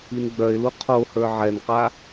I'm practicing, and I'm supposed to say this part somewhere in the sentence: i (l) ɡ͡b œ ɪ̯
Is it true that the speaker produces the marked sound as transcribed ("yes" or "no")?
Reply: no